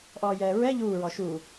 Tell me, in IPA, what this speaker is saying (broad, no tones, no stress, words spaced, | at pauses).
ʔɔːjɛːɹɛ ʎuːɹɔ ʃu